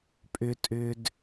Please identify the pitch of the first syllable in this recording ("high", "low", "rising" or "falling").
high